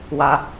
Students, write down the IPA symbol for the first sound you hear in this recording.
w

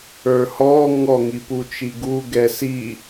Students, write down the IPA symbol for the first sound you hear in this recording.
ə˞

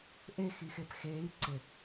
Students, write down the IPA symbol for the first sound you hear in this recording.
ʔ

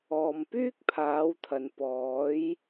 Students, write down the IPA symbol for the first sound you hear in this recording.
ɔː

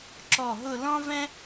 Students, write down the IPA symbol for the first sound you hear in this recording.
ǁ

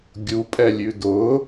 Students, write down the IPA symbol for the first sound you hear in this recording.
ɡʲ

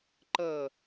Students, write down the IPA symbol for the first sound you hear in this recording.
ǃ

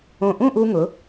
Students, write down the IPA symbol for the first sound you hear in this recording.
õ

